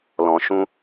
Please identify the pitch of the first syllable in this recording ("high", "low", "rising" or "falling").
low